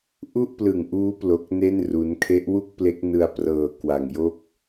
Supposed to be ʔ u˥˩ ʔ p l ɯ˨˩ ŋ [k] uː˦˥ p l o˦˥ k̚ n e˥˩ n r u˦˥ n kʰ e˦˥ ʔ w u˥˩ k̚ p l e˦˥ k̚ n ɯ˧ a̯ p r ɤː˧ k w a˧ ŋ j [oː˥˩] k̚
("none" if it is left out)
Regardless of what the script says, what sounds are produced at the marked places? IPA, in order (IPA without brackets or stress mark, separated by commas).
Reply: ʔ, o˥˩